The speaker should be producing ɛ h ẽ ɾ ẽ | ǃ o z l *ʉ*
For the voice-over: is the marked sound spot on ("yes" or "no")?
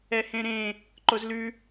yes